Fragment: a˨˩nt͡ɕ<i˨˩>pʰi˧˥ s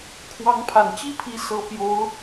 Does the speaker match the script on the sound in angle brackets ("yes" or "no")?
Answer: no